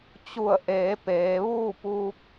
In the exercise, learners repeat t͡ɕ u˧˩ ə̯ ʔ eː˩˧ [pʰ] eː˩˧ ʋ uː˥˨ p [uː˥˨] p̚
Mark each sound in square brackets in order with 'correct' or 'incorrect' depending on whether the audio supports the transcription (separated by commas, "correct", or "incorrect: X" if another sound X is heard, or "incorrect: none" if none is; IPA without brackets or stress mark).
incorrect: p, incorrect: uː˧